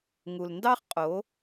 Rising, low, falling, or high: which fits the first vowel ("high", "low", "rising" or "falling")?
low